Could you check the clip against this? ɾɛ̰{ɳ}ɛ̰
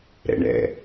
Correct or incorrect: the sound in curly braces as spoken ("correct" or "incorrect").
correct